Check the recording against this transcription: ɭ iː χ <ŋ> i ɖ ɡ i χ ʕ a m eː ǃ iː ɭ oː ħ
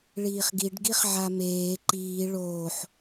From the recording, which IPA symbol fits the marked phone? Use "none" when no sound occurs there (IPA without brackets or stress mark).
ɡ